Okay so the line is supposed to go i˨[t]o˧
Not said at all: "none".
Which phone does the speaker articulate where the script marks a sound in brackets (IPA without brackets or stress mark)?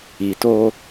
t